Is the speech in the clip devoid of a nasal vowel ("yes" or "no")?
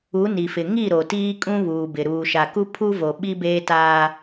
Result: no